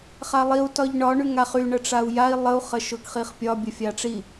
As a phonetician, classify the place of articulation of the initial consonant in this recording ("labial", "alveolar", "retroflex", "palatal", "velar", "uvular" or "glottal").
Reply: uvular